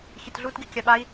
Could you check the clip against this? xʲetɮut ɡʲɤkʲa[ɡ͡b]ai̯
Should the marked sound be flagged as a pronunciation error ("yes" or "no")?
yes